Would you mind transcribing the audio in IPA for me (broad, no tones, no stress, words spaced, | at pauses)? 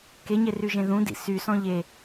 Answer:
keɲe ryʒẽðũdḭ sysɔ̃ ʎe